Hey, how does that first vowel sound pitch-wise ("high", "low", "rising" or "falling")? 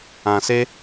low